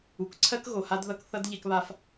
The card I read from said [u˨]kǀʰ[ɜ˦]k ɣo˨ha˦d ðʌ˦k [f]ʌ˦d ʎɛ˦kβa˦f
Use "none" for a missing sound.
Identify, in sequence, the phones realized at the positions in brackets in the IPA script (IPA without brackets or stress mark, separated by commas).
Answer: u˨, ɜ˦, θ